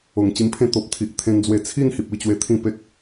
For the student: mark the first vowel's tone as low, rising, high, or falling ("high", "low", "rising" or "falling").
low